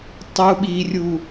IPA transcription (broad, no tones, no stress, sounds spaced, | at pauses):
tˤ u ɓ i rʲ u